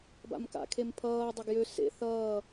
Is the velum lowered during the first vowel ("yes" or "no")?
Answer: no